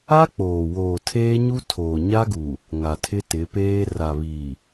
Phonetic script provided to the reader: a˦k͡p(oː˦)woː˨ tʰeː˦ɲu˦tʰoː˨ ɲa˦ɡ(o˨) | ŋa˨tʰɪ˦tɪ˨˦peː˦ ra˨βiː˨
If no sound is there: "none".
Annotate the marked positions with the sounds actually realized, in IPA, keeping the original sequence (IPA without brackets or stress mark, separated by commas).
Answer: oː˨, u˨